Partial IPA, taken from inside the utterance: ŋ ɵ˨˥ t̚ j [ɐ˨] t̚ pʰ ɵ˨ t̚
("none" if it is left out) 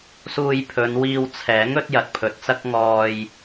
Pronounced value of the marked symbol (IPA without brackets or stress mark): ɐ˨